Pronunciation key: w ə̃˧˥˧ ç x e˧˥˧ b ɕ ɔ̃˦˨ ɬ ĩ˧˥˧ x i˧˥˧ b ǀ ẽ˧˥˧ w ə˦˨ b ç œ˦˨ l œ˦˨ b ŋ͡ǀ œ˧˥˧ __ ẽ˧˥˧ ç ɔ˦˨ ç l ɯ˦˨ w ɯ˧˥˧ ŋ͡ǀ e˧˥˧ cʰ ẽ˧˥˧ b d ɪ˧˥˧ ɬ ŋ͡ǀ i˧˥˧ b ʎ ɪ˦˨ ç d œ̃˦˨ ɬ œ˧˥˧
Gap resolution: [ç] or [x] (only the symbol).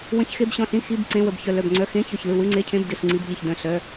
x